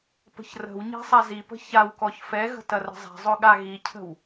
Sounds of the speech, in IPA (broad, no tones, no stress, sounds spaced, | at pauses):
p ə̤ ç r ə̤ w ɲ ɛ̤ sˤ a z i p ə̤ ç a w k ɔ ç f ɛ ɣ ə̤ t ɐ r ə̤ zˤ ɛ̤ zˤ ɵ ɠ a ɣ i cʰ ə̤ w